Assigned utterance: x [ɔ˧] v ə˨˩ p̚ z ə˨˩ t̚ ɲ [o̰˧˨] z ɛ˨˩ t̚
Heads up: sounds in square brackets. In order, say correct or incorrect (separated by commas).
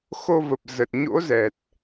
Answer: incorrect, incorrect